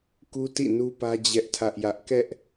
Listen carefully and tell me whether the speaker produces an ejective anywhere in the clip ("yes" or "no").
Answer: no